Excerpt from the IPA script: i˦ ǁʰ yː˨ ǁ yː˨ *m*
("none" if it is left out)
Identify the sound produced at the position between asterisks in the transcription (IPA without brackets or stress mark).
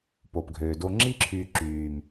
m